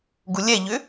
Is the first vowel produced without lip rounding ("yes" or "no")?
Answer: no